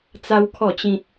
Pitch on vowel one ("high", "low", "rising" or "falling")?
high